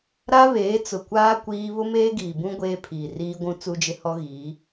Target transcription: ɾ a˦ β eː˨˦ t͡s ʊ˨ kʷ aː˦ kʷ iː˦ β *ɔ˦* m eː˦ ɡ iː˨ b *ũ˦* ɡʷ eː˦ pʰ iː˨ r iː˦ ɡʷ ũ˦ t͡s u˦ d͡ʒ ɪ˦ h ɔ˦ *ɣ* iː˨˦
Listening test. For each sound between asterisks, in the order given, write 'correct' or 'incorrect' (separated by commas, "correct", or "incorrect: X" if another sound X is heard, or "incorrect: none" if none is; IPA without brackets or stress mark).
incorrect: ʊ˦, correct, correct